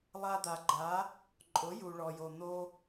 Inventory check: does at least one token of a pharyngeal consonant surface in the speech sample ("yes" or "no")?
no